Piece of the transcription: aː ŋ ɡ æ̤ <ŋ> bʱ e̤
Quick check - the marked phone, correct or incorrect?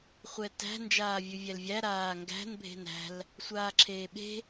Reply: incorrect